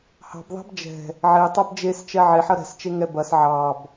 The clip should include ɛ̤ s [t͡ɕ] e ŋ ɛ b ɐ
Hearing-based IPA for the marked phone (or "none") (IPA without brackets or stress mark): t͡ʃ